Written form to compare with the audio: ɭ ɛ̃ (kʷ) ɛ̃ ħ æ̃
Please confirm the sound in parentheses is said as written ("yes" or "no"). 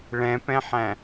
no